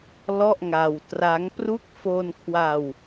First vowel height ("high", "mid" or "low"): mid